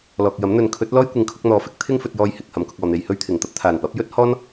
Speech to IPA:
lɔː˨k̚jɐ˨˥m n̪ɵ˨˧nkʰɵ˨˥t̚lɔː˥j kʷɪ˨˧ŋkʰʊ˧k̚ n̪ɔː˨˥fɪ˨˥k̚ t̪ʰɪ˥ŋ fɵ˧t̚jɔː˧jhɪ˨k̚ hɐ˨˧mkʊ˧k̚ɔː˨n̪e˧j hɵ˥ɥt̪ʰɪ˨˩ŋ t̪ɐ˧p̚t̪ʰaː˨˩npɐ˨˥p̚ jɵ˥t̚ hɔː˥n

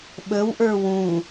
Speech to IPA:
ɓəwʔə˞ wũ

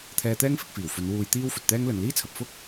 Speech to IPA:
t̪ʰɛː˧t̪ɛː˥ŋfɪ˧k̚fiː˨˩w fɵ˨˧n wuː˧jt̪iː˥w fɵ˨t̚t̪ɛː˥ŋ lɵ˨nliː˥t͡sʰɐ˨p̚ fʊ˥k̚

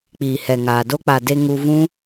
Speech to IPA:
k͡piː˨hɛ˨ŋaː˨ do˧k͡pa˨ de˧ŋu˧vũ˦

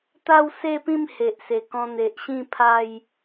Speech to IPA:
t̪a˥˧wse˥˧pĩ˥˧m he˨ʔse˨˩kɔ̃˧n̪e˨ʔ ɕĩ˥˧pʰa˥˧j

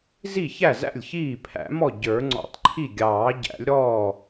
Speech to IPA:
zi˥˩çæ˥˩zæ̰˥˩lʲ çiː˥˩ pʰæ̰˨˩˦mɔ˥˩ ɟə˞˨˩˦ŋ͡ǀɔ̰˨˩˦tˤǃʰi˥˩ ɡʲɑː˨˩˦ɟæ̰˨˩˦lʲɾɔː˥˩

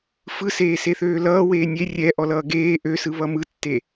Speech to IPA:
fɯ seːseθøːlʌː weːnʲe rʲɛ ʔɔlʌːɡeː ʔøsɯ βʌmɯtːe

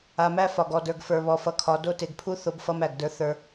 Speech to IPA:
a˨mæ˦ fɒ˨ɡɔ˨də˞˨ɡ fə˞˨βɔ˨fʌ˨kʰɒ˨˦ do˦ te˨ɡpʰu˦ θo˦bfʌ˦mæ˨ɡdə˞˦ θə˞˦

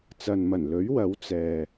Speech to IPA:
t͡sɐ˨nmɐ˨˩nlɵ˨˥ɥ wɐ˨˥w t͡sɛː˨

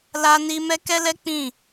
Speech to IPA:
la˧ni˧ mɛ˦ kɛ˦lɛ˦ k͡pĩ˦˨

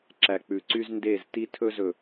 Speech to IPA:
ǁæ˨k͡pʉ˨ǀy˦z nde˦˨zti˦tʰɵ˦zɵ˨

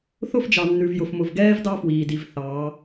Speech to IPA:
θʊ˦˨fd͡ʒɑ˨nːʉ˨vjʊ˨f mʊ˨vɡɛː˦v dɑ˦fwiː˨di˨v θɑː˨˦

